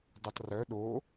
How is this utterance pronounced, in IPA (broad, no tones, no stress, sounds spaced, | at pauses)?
d u tˤ r œ ɗ o